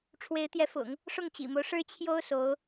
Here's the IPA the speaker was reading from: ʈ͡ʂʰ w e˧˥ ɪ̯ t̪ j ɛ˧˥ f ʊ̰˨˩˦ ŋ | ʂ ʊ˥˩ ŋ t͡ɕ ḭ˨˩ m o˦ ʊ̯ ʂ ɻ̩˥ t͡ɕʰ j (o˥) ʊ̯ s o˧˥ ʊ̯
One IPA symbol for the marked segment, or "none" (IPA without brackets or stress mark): o˥